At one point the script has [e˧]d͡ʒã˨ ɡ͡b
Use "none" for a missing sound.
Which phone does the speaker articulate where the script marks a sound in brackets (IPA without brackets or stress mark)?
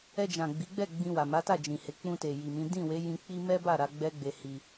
ɛ˧